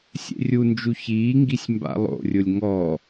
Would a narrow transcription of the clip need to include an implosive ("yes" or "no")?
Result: no